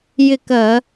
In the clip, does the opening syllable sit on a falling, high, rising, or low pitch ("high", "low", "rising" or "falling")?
falling